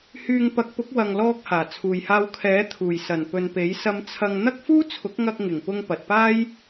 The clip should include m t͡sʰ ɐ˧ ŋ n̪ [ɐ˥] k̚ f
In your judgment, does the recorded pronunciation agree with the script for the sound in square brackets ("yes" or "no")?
yes